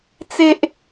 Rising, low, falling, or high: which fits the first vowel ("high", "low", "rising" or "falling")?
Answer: high